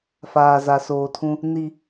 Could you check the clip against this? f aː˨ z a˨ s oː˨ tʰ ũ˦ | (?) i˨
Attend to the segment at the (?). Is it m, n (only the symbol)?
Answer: n